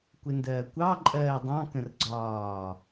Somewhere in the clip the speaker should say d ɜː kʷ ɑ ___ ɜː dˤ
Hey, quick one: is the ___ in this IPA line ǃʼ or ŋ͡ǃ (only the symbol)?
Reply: ǃʼ